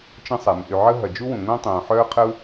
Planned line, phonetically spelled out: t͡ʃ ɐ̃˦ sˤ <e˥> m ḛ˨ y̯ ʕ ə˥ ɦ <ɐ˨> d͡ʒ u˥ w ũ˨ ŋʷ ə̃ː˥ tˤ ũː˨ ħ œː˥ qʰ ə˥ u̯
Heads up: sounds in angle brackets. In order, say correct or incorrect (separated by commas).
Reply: incorrect, correct